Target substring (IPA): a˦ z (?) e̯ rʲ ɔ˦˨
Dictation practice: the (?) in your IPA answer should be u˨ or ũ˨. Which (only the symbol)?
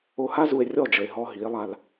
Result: u˨